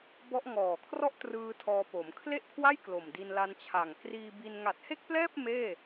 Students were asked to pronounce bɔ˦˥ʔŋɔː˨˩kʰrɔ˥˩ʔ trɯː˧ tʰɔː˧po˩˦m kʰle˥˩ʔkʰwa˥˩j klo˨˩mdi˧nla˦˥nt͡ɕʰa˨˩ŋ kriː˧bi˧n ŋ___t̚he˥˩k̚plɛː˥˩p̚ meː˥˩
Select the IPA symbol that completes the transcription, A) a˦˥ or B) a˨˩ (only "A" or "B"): B